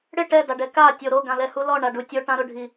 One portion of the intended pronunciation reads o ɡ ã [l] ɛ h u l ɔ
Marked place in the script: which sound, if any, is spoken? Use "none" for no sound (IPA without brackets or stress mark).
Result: l